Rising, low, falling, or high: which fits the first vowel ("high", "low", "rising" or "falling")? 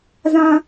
high